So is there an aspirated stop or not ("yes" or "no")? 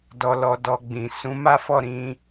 no